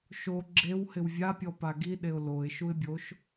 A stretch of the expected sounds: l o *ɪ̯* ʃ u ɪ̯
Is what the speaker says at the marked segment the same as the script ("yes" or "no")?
yes